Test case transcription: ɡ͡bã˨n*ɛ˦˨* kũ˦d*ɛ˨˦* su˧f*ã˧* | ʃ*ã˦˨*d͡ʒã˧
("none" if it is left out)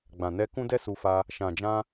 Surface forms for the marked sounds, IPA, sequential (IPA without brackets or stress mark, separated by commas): ɛ˧, ɛ˦, a˧, ã˨